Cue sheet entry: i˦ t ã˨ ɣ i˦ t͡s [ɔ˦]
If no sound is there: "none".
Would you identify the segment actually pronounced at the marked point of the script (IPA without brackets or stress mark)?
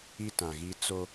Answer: o˦